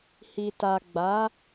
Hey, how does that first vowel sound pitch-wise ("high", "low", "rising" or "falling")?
low